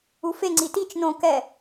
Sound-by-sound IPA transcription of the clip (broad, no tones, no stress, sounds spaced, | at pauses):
u f e ŋ͡ǀ i t i t͡ʃ n õ k ɛ